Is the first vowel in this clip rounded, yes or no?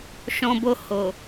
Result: yes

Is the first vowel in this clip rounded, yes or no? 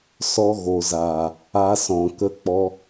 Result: yes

